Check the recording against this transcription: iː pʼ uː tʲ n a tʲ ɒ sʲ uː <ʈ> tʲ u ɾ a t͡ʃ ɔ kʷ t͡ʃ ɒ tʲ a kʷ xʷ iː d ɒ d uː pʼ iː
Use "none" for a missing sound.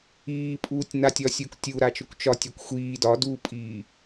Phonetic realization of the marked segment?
k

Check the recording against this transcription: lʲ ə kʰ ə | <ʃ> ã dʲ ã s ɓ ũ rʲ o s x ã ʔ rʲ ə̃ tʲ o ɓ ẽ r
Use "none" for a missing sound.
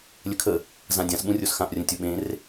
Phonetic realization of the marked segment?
z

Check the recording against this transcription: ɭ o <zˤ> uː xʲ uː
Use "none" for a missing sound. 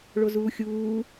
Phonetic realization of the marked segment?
z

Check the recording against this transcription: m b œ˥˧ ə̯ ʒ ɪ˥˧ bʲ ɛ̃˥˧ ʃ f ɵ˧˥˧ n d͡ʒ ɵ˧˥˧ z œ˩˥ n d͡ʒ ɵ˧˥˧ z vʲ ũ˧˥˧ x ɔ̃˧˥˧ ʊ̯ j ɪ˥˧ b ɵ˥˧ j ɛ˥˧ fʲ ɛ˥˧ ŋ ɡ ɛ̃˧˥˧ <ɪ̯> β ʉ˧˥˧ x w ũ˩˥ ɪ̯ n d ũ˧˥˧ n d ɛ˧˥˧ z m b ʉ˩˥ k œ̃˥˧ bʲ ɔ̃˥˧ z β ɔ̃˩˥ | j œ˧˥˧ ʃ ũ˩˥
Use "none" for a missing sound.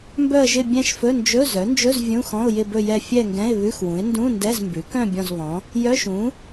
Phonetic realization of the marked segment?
ɪ̯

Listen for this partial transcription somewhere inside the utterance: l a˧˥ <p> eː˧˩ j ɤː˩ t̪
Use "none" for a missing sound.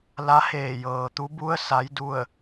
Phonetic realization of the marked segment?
h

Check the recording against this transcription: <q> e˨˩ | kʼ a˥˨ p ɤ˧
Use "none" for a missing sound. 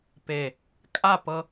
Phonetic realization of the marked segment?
p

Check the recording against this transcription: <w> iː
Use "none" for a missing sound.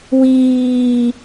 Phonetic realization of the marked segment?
w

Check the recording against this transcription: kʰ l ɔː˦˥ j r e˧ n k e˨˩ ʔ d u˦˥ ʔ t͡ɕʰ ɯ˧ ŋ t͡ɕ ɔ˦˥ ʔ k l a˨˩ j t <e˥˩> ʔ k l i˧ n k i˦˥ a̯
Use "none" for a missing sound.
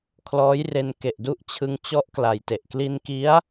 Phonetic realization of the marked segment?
e˨˩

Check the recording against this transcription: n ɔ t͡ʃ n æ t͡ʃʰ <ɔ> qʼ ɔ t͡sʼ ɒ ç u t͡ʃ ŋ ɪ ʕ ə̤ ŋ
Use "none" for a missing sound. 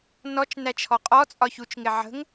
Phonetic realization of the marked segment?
ɔ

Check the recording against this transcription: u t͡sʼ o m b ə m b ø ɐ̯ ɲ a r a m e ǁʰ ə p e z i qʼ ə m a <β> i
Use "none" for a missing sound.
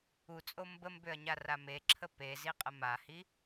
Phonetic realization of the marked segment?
h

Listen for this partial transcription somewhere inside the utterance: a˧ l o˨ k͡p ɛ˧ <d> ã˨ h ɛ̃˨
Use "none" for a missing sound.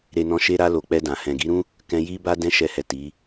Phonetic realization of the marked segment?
d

